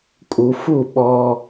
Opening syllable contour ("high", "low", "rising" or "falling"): low